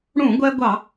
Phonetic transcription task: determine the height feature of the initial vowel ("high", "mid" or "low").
high